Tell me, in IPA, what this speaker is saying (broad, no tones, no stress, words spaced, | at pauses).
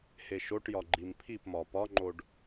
heʃoʈjɒ ɡ͡ǃimpʰipmɒ pɒŋ͡ǃoɖ